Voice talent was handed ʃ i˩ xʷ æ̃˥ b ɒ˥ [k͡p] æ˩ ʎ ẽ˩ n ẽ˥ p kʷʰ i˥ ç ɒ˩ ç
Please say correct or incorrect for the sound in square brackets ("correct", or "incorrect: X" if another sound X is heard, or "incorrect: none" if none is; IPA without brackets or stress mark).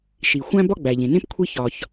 incorrect: ɡ͡b